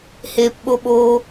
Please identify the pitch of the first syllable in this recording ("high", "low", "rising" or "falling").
low